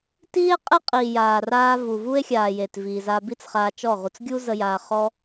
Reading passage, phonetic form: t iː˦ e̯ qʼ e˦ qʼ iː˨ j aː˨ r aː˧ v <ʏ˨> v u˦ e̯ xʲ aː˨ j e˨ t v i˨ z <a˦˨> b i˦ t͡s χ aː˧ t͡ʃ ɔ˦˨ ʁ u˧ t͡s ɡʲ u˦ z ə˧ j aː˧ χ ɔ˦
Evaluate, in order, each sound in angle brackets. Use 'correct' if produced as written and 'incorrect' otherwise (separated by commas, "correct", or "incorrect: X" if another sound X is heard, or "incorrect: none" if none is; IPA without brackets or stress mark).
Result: incorrect: u˨, incorrect: a˧